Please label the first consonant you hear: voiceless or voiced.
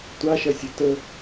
voiceless